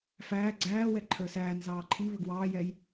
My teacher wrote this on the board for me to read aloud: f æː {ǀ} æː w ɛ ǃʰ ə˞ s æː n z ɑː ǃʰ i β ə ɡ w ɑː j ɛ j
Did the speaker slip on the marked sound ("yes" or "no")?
yes